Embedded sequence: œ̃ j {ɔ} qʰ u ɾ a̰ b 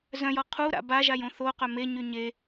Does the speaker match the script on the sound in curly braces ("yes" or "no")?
yes